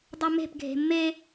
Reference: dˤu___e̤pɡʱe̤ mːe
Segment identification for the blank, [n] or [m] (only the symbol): m